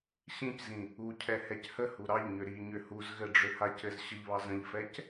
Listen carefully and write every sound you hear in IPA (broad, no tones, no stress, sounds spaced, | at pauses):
ɕ ĩ c z ĩ | u cʰ ɛ h ɛ c h ə h u ɾ ɑ ʎ ɲ ʏ ɾ i ɲ ʏ h u z ɣ ɘ ɖ͡ʐ ʏ h a c ɘ z ɕ ə ʎ β ɑ z ə̃ ʎ f ɛ c